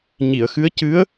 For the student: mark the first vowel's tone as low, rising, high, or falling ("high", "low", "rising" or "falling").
low